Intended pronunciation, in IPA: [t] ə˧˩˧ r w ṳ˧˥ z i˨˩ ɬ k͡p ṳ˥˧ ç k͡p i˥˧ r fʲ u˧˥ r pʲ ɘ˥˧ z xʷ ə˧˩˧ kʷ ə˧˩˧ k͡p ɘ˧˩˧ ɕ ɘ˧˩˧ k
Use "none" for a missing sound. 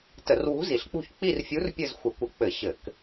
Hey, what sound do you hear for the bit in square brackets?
t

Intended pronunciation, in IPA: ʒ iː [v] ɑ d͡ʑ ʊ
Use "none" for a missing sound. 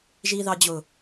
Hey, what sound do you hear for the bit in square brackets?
ð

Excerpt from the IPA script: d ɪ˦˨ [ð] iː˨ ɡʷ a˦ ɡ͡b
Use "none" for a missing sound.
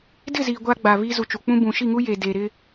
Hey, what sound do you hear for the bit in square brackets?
z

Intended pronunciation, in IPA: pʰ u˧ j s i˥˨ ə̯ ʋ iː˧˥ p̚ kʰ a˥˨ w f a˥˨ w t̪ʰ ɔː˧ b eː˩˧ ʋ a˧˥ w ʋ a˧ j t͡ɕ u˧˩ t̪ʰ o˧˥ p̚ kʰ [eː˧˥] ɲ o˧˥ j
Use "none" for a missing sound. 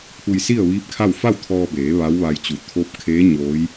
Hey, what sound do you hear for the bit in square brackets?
eː˧˥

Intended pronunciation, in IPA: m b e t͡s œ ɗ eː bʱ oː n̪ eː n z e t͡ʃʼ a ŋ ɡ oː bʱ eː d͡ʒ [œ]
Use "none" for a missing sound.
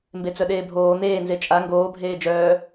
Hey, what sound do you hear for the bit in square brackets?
œː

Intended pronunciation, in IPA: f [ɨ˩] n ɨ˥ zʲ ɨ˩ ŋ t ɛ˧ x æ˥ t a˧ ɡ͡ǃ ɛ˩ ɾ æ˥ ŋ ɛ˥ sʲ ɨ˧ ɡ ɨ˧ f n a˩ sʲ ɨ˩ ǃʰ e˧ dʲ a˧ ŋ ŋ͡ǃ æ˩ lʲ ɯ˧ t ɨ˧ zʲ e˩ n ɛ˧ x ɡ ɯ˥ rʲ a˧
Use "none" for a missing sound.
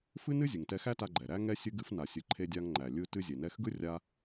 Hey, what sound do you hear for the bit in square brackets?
ɨ˥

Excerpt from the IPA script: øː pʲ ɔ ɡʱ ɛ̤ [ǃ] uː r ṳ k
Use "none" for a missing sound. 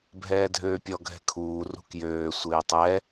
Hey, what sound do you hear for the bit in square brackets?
kʰ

